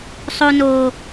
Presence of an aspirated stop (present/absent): absent